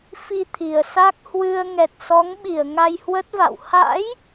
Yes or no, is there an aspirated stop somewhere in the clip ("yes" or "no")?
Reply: yes